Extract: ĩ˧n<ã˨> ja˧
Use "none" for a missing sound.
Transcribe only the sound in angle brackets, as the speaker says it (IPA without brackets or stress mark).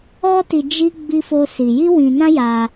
ã˦